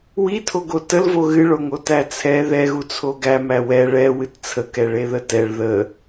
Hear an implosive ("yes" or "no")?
no